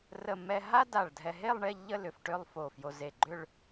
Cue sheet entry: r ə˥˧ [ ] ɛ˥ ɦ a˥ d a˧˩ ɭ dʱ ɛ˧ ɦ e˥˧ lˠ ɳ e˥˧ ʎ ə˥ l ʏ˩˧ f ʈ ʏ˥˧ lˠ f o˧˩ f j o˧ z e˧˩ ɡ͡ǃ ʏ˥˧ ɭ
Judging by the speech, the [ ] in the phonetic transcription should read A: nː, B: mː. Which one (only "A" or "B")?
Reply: B